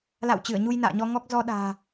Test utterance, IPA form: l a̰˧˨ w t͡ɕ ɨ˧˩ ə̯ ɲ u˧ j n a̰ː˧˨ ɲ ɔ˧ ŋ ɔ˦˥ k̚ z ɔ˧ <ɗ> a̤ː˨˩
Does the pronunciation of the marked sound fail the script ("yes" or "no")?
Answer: no